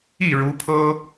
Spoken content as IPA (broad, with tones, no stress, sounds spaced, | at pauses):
i˥˩ ɻ u˧˥ pʰ ɤ˥